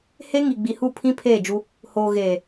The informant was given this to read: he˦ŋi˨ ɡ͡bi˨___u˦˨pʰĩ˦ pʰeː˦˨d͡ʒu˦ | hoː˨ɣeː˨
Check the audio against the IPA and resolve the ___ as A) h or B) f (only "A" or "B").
A